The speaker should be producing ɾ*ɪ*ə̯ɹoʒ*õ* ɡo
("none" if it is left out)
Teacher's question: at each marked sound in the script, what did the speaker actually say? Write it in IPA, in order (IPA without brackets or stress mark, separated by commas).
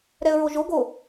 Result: ɛ, o